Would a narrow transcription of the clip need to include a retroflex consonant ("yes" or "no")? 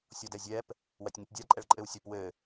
yes